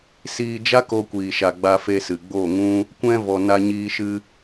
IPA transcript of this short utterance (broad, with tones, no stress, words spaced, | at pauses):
siː˧d͡ʒa˦ ko˧kʷiː˨ʃa˨ ɡ͡ba˧fe˧sɨ˨ ɡ͡bo˦˨ŋũ˦ | kʷɛ̃˧ vɔ˨na˧ɲiː˧ʃɨ˧